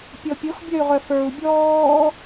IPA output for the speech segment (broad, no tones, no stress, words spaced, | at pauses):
pʲɔpʲox bʲœy̯ʁœfə˞u̯ bʲɔː